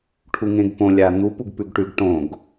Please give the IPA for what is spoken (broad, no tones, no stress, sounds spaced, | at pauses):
ʈʰ u ŋ ẽ ɡ p õ lʲ a n̪ u p u ɡ p ʉ ɡ ʈ ʉ ɡ ʈ õ ɡ